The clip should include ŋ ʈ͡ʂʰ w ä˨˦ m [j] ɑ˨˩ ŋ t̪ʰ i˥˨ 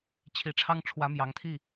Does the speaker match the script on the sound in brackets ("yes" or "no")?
yes